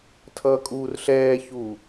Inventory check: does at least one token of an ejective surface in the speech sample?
yes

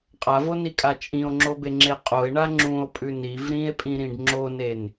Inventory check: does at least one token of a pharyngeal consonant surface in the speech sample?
no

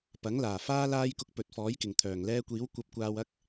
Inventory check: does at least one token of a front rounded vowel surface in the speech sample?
yes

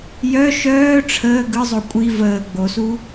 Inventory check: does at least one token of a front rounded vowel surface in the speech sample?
yes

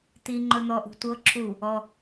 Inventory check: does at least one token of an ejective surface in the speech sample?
no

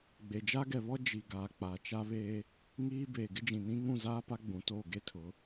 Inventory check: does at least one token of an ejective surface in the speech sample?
no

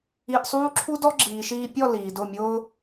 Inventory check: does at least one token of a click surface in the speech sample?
yes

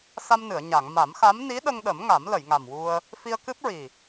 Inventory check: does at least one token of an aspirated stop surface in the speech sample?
no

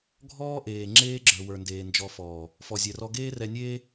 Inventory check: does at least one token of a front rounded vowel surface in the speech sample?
no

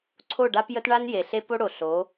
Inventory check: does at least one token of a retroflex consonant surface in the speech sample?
yes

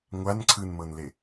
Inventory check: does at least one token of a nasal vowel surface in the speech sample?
no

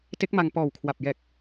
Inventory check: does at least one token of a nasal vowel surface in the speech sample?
no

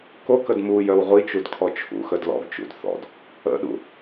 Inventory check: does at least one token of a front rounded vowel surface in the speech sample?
yes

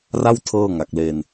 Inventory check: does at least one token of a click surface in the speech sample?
no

